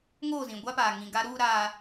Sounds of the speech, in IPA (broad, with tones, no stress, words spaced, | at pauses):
ŋoː˦˨zĩ˨ɡʷa˦paː˨ ŋĩ˨ɡa˦ɾuː˦ ɾa˦